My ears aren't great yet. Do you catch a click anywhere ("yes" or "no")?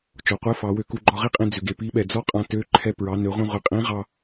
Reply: yes